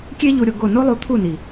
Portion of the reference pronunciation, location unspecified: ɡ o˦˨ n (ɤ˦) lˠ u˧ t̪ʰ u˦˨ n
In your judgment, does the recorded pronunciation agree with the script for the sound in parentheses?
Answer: no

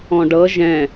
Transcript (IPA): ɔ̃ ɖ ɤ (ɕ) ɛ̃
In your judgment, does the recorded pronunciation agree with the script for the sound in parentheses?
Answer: no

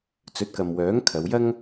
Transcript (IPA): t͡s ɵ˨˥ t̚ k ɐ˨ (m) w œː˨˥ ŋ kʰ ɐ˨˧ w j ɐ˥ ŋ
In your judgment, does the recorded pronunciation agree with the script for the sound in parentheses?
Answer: yes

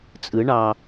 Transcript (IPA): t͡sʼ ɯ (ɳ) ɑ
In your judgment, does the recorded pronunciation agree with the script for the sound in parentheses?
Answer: yes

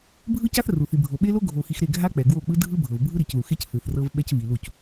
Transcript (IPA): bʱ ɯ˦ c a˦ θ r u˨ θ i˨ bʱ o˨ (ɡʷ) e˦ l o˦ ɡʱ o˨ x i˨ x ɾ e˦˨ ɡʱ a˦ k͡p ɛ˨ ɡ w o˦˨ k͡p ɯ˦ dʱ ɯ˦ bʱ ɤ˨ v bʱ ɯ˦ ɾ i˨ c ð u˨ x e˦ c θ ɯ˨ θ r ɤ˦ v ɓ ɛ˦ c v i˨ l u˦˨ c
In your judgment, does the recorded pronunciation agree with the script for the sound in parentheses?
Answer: no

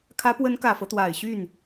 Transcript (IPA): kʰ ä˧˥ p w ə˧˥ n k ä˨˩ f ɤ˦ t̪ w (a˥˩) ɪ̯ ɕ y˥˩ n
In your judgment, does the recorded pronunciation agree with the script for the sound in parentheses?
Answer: no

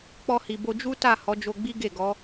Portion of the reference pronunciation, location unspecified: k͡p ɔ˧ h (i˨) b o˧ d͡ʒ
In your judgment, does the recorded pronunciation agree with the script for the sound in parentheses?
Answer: yes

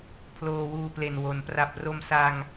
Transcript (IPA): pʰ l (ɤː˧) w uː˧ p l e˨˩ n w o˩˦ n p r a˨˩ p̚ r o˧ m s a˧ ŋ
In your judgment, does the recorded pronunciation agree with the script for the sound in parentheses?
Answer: no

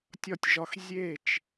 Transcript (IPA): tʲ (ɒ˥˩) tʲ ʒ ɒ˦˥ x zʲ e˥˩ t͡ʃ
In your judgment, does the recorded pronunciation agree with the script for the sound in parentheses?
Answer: yes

